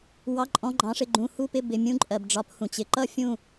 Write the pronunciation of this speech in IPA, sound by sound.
w ɑ˩˧˩ ǃʼ ɔ̃˩˧˩ ɡ͡ǃ ɑ̃˩˧ ʂ ɪ˧˩ ɡ͡ǃ ũ˩˧˩ h u˥˨ p ɪ˥˨ b ɪ˩˧˩ mʲ ũ˦ ǃʼ ɜ˩ b ɖ͡ʐ ɒ˩˧ p h ũ˩ t͡ɕ ɪ˩˧ ǃ ʌ˥˨ fʲ ũ˥˨

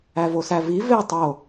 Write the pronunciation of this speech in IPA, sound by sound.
æ v o s æ v i v e tˤ o

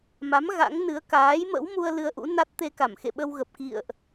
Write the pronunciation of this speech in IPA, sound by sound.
m a˨˦ m ɣ a̰˧˥ ŋ n ɨ˨˦ ə̯ k aː˨˦ j m ə̰˧˥ w m u˧ ə̯ l ɨ˧ ə̯ ʔ ṵ˧˥ n a˦˥ t̚ t̪ e˧ k a˧˩ m x ḛ˧˨ ɓ ə˧ w ɣ ə˨˩ p̚ k ḭ˧˨ ə̯ ʔ

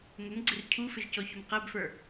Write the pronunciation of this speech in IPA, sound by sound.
m ə m ɡ͡ǀ ɪ r cʰ u f ɪ ʒ c ɔ ç ʊ m q æ b f ə˞

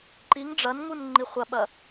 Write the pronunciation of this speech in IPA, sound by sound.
ǃ i ŋ ɖ͡ʐ ɐ n ŋ u n ŋ͡ǃ i χʷ ɐ ɓ ɐ

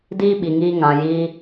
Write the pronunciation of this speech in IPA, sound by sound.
d iː˦ ɓ i˨ ŋ iː˧ ŋ ã˨ j iː˧

